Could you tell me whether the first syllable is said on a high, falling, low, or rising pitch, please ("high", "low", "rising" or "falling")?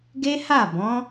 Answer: high